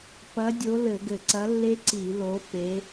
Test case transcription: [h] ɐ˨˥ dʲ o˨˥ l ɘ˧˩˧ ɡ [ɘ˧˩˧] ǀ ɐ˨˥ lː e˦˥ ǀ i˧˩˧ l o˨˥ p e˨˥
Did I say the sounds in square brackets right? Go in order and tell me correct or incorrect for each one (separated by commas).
incorrect, correct